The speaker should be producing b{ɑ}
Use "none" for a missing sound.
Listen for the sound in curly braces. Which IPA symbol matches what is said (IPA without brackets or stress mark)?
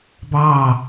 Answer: ɑ